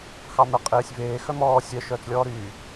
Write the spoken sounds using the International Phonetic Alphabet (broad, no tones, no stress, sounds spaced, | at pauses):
x ɑ m ɛ qʼ eː sʲ v eː x œ m ɔː sʲ œ ʃ œː t͡s lʲ ɔː ɾ yː